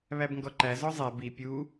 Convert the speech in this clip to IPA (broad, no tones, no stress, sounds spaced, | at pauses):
β æ b ŋ ɡ ɔ ǃ æ z ɔ zˤ ɛ b i pʲ u